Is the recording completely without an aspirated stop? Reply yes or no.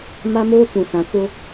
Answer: yes